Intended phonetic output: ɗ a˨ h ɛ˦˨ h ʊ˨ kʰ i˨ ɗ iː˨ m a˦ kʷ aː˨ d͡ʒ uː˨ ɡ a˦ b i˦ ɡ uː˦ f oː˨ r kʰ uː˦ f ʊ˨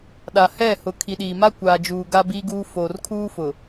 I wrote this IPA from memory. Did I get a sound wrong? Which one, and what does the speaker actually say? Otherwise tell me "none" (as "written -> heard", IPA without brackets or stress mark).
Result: none